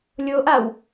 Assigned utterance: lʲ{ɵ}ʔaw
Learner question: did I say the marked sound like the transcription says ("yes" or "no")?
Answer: no